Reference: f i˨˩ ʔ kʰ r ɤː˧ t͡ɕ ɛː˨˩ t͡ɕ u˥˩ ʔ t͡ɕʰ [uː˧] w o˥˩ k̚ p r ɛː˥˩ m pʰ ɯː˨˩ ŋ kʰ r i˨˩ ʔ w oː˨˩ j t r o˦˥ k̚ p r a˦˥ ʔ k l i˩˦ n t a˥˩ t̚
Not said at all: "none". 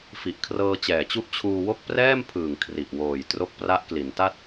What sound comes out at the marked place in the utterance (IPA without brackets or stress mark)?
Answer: uː˧